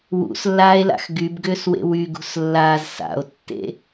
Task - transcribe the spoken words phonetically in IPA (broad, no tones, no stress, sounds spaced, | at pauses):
w ṵ s lː aː e̯ l a̰ x ɡ y b ɡ ʏː s w ḛ w y ɡ ṳ s lː aː z s a̰ o̯ tː ḛ